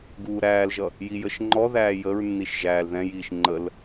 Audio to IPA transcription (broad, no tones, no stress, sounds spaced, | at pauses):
ɡ uː ɾ æː l ʒ ʌ | j i j ə ʃ ŋ͡ǃ ɔ ð æː j ə ɹ nː i ʃ ʒ æː l ð ɛ̃ j iː ʃ ŋ͡ǃ ə l